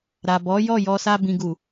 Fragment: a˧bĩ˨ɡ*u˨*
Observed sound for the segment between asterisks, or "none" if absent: u˨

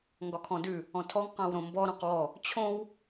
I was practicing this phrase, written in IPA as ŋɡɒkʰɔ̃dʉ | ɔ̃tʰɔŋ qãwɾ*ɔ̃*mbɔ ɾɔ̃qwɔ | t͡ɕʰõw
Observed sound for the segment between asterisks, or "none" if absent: õ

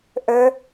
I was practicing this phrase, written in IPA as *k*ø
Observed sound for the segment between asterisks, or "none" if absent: ʔ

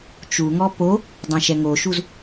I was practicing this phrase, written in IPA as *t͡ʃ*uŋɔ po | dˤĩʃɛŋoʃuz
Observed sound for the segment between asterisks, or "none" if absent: t͡ʃ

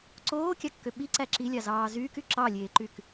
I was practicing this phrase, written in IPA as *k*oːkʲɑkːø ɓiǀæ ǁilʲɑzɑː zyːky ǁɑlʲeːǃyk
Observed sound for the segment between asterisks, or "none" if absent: ǀ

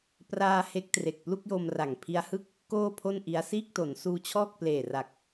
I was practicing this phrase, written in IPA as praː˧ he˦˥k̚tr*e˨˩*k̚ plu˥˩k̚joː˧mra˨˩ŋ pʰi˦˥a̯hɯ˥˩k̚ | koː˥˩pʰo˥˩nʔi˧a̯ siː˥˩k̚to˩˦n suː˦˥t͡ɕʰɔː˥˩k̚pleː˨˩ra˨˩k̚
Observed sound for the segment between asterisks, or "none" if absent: e˨˩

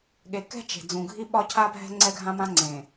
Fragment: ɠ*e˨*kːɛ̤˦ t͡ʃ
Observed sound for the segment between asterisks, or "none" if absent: e˨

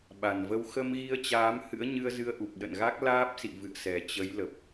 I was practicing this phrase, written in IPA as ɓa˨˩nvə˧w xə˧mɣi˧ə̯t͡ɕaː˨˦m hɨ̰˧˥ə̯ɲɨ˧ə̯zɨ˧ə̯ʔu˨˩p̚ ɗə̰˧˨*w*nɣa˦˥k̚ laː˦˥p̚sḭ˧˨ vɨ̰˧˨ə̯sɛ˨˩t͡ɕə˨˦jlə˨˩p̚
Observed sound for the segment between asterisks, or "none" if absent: none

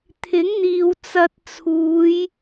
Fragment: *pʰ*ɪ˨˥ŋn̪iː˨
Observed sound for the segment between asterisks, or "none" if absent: t̪ʰ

